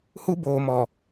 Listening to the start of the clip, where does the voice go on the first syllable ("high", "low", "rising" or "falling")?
high